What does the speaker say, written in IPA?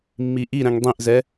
mː i ʔ i ɾ ɛ̃ ŋ dˤ ĩ ʔ z ɛ

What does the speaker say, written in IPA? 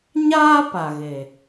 ɲ aː˦ p a˨ ɣ e˨

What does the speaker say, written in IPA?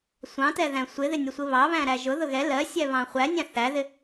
sʷ ɑ̃ t ɛ ð æ̃ sʷ ɪ ð ɪ nʲ ɒ sʷ ɪ β ɑ β æ̃ ɾ æ ʒ ʊ ð ʊ ɣ ɛ l ɜ sʲ ɛ β ɑ̃ χʷ æ nʲ æ̃ θ æ ð ɪ

